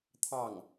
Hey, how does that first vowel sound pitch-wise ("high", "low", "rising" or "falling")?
falling